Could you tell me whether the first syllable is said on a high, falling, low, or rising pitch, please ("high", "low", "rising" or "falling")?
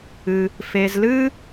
low